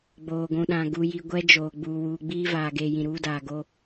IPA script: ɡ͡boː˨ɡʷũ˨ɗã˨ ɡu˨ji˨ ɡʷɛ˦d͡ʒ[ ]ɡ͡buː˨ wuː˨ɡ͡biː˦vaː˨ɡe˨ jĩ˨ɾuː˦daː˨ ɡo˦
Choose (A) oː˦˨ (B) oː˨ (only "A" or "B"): B